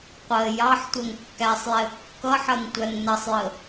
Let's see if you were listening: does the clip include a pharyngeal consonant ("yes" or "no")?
yes